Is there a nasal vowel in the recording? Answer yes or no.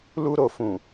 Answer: yes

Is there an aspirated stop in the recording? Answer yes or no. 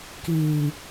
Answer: no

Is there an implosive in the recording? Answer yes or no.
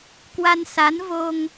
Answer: no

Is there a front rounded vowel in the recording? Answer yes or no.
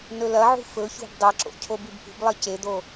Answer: no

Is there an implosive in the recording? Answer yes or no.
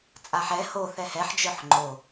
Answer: no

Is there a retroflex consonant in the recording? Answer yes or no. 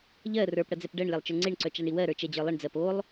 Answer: yes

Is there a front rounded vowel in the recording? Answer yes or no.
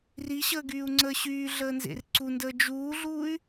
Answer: yes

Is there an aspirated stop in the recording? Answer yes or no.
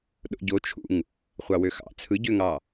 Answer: yes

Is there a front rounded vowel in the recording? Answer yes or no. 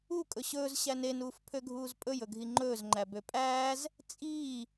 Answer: yes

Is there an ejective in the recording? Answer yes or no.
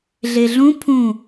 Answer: no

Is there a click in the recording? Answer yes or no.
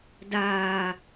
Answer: no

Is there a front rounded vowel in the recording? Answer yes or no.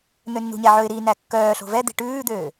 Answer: yes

